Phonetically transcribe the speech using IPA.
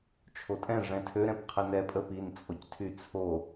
t͡ʃʰ o tʼ ɛ̃ ʐ ɛ̃ tʰ ø ɾ ɛ̃ p qʰ ɛ n ɛ pʼ ə p i n t͡sʼ o c tʰ y t͡sʰ o

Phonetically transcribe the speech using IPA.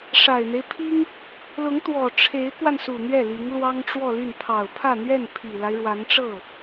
ʂ a˨˩ ɪ̯ n̪ e˦ ɪ̯ pʰ i˥ ŋ | l ʊ˧˥ ŋ t̪ w ɔ˨˩ ʈ͡ʂʰ e˧˥ ɪ̯ k w a˧ n s u˨˩ n̪ ɥ ɛ˥˩ l i˧˥ ŋ l w ɑ˥ ŋ ʈ͡ʂ w ɔ˥˧ l y˥˩ n pʰ ɑ˨˩ ʊ̯ pʰ ä˥˧ n̪ ɥ ɛ˥˩ n pʰ i˨˩ l a˦ ɪ̯ ɻ w a˧˥ n ʈ͡ʂ ɤ˥˩

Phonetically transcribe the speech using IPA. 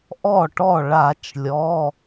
ʔ ɔ˥˩ ʈ ɔ˥˩ ɭ a˧˩˧ t͡ʃ lʲ ɔ˩˧˩

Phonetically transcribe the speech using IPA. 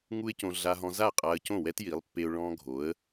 ŋ u˥ ɪ̯ c õ˧ ɮ a˧ ɦ ɔ̃˧ z a˥˩ qʼ a˧ ə̯ c õ˥˩ w ɛ˥ t j i˩˥ lˠ pː e˧ ʊ̯ ɭ ɔ̃˧ ɡʱ o˩˥ ə̯

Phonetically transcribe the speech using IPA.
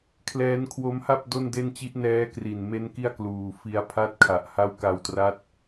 kʰ l ɛː˦˥ n kʰ w o˦˥ m h a˥˩ p̚ d o˥˩ n d e˥˩ n t͡ɕ i˦˥ ʔ n ɛː˦˥ k r i˨˩ n m e˦˥ n k i˥˩ a̯ k l uː˨˩ f i˧ a̯ pʰ a˦˥ t̚ kʰ a˨˩ ʔ h a˦˥ w k a˧ w t r a˦˥ t̚

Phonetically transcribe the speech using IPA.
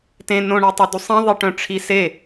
t ẽ n õ ɳ e tˤ o d u sˤ ĩ ðˤ i ʈ œ̃ ʈ͡ʂʰ i s e

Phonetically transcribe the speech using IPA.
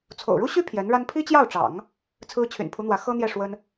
t͡sʰ o̰˨˩ ʊ̯ ɻ u˥ ɕ y˥ pʰ j ɛ˧˥ n ɻ a˥ n pʰ i˥ t͡ɕ j ɑ˥˩ ʊ̯ ʈ͡ʂ ɑ̰˨˩˦ ŋ | t͡sʰ ɹ̩˥ t͡ɕʰ y̰˨˩ n pʰ u˧˥ n̪ w ä˧˥ x ɤ˥ n̪ j ɛ˥˩ ʂ w ə˥ n

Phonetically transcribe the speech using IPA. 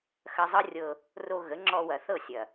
x ɐ˧ zˤ ɤ˦ rʲ ɤ˧ | r o˧ ɣ ə˨˦ ŋ͡ǁ ɔ˧ w ɐ˨ θ ɤ˦˨ sʲ ɐ˨

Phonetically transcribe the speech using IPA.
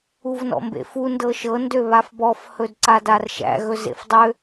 u v n ɔ̰ m b ḛ f u n d ɤ ʃ ɤ n d ø β a f b ɔ f h ɵ d ǀ a d a r ʃ æ̰ ɣ ɵ z ḛ f dˤ ø

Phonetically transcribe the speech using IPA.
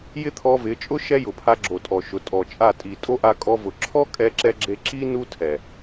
j ɪ˦ t̪ʰ ɔ˧ v ɪ˨˦ t͡ʃʼ ʊ˦ ʃ ɛ˦ j ʊ˨ pʰ a˧ ɡ͡ǁ o˨ tʼ ɔ˨ ʃ ʊ˨ tʼ ɔ˨ t͡ʃʼ a˦˨ tʼ i˨ tʼ o˦ ʔ a˧ kʼ ɔ˧ v ʊ˨ ǁʰ ɔ˦ kʼ ɛ˧ ǁ ɛ˧ ɡ͡ǁ e˧ ǁ i˦ n u˦ tʰ ɛ˨

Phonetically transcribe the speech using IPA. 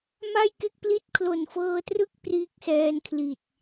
m a˥˩ j k e˥˩ k̚ p l i˥˩ t̚ kʰ l o˨˩ n f ɤː˧ t r ɯ˦˥ k̚ p r iː˦˥ k̚ s ɛː˧ n kʰ l i˨˩ t̚

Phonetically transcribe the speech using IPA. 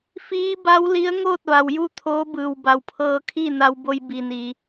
f iː˧˥ b a˧˥ w l i˧˥ ə̯ ŋ oː˥˨ t̚ ʋ a˩ w j u˥˨ t̪ʰ oː˧˥ b ɯː˩ w b a˩ w pʰ ɤː˧ kʰ iː˥˨ n a˧ w b o˧ j b i˩ n iː˩

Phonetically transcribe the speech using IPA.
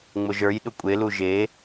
ŋ͡m ʊ ʒ ə˞ j ɗ ʊ kʷʼ e l u ʒ e

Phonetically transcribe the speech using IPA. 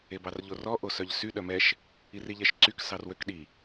e b ɑ r ʎ o r ɔ ʔ o s œ ʎ s y ɗ œ m ɛ ʃ | i r i ʎ ɛ ʃ ǀ y k s ɑ r w ø k ɗ i

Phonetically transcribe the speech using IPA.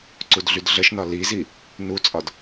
ǀ u d ɮ y d ɮ ə ʃ n ɒ l i z i | n u t͡sʼ ɒ d

